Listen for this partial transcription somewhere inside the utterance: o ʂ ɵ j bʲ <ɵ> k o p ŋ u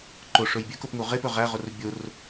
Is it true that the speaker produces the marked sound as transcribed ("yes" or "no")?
no